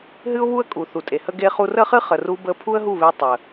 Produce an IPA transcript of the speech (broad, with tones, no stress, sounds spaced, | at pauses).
ɦ ɨ˦ ʊ̯ β u˦ ə̯ kʼ u˨ θ u˨ tʼ e˨ h ə˦ ɡ e˧ χ u˧ r ə˦ χ ɨ˦ χ ə˨ r u˧ b ə˧ pʰ u˦ ə̯ ɦ u˦˨ β e˧ tˤ ə˨